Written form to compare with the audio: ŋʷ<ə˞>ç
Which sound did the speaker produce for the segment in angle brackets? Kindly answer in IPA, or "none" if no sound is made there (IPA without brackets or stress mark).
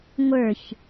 ə˞